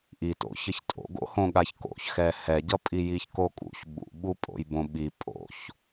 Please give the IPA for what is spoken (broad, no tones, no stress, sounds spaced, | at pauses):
ʔ i t o̰ ç ʌ ç tʼ o̰ ɡ o̰ h õ ɠ a ç k o̰ ç x ɛ h ɛ ɟ ʌ pʼ i j i ç k o kʼ ṵ ç ɓ ṵ ɓ u pʼ o̰ j b õ ɓ i pʼ o̰ ç